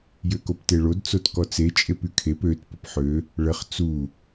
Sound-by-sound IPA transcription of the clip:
j ø k o p t e ɭ o d t͡s o t k ɔ t͡s e t͡ʃʼ e p y kʰ e p ø t p ə p ħ ø | ɭ ə χ t͡s u

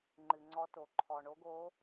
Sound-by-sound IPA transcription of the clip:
ŋ͡ǃ ɨ˩ ŋ͡ǀ ɔ˨˦ t o˩ ǃʰ ɔ˩ ɳ o˨˦ ɡ o˨˦

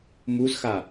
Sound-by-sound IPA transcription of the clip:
m u z x a

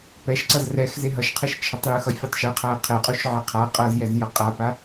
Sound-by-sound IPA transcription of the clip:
p ɛ ʃ ǀ ʌ z r ɛ x z e ɦ ʌ ʃ qʰ ɛ ʃ t͡ʃʰ ʌ tˤ j ɯ x ʌ fʲ u tˤ ʃ ɯ qʰ a ə̯ qʰ ɛ qʼ u ʃ ʕ e qʰ a qʼ ʌ z j ɛ z j ʌ qʼ a p a

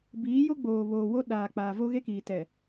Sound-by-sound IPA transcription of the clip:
b iː˨˦ j o˦ ɡ͡b oː˨ β oː˨ w o˦ ɗ aː˨ k͡p aː˨ v o˦ ɣ e˦ k iː˨ t ɛ˨

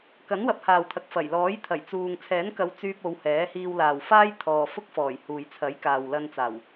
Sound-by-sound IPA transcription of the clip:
k ɐ˨˥ n w ɐ˨˥ p̚ h aː˨ w t̪ʰ ɐ˨ k̚ f ɐ˨˩ j l ɔː˨˥ j t̪ʰ ɐ˨˩ j t͡s uː˨ ŋ t͡sʰ ɛː˨˥ n k ɐ˨˧ w t͡s yː˧ p̚ o˨˧ w h ɛː˨˥ h iː˧ w l aː˨ w f aː˥ j t̪ʰ ɔː˨ f ʊ˥ k̚ f ɔː˨˩ j h uː˨ j t͡sʰ ɐ˨˥ j k aː˨ w l ɐ˧ n t͡s aː˨˩ w

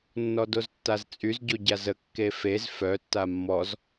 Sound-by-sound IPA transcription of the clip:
nː ɔ d o z tː a z t͡sʼ y z ɟ o ɟ a z ə kː e f e z f œ tː a mː ɔ z

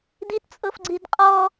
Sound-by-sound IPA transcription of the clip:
d i t t͡sʼ ɤ f ɡ͡ǀ i d qʼ ɔ

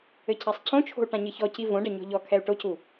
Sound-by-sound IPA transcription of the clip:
ɘ cʰ a sˤ cʰ õ t͡ʃʰ o̤ u̯ ʈ ã ɲ ɘ ç ɔ c i v õ ɖ ɐ ɲ ɔ̤ ʎ ɔ kʰ ɛ u̯ ʈ o c u

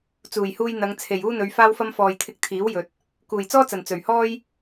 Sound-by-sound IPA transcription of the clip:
t͡s uː˨˩ j h uː˧ j n̪ ɐ˨˧ ŋ t͡sʰ e˨˩ j uː˥ n̪ ɵ˨˧ ɥ f aː˥ w f ɐ˥ m f ɔː˨ j t̪ʰ ɪ˧ k̚ t̪ʰ iː˨˥ w j ɵ˧ t̚ | k uː˨˩ j t͡s ɔː˥ t͡s ɐ˨˩ n t͡s ɵ˨˩ ɥ h ɔː˥ j

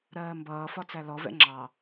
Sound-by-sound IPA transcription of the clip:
ɾ ɜː m b ʌː f ɒ t͡s æ l ɔ v ɛ̰ ŋ͡ǁ ɑ

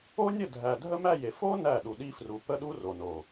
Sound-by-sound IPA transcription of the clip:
o˦ nʲ ə˦˨ dʱ æ˨ dʱ ə˦ m æ˦˨ j e˨ f o˦ n æ˦˨ ɗ u˨ ɗ i˦ f r u˨ p ə˦ ɗ u˦ r o˨ n o˨

